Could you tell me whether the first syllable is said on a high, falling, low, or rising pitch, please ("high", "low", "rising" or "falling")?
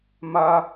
high